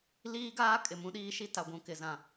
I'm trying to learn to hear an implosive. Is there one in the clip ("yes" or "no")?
yes